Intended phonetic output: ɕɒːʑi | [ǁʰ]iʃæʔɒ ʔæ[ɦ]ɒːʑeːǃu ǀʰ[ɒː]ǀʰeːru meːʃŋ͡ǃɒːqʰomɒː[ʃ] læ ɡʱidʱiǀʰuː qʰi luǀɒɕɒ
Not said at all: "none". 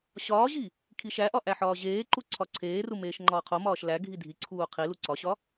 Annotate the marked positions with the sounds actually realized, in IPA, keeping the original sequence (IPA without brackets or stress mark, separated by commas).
kʰ, ħ, ɒ, ʃ